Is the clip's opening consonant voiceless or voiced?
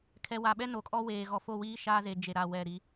voiceless